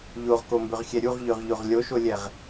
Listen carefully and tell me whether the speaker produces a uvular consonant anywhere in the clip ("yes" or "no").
yes